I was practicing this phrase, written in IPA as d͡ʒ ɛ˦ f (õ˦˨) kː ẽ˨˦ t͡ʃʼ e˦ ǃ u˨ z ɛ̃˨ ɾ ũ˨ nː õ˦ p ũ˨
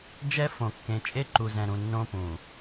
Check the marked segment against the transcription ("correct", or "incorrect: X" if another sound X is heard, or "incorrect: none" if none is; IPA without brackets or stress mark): incorrect: õ˨